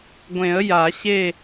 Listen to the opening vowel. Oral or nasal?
nasal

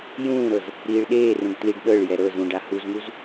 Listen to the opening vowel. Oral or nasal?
nasal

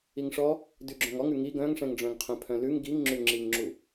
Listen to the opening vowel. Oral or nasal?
oral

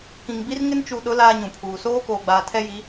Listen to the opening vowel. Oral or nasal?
nasal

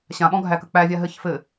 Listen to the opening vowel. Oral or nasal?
nasal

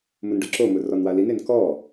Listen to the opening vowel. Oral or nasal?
oral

